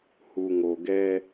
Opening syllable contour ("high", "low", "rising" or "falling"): low